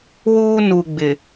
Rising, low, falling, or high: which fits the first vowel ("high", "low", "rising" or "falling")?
high